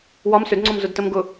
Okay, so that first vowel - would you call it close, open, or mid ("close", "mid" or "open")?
open